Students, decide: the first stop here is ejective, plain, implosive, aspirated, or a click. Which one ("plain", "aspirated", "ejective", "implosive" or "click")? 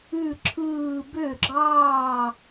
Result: click